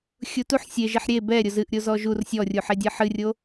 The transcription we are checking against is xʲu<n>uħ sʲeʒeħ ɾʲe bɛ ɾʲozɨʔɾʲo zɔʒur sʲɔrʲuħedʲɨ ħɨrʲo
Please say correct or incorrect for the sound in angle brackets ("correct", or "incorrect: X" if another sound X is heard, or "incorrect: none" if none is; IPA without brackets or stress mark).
incorrect: t